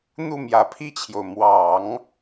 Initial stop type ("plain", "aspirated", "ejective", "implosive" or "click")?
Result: aspirated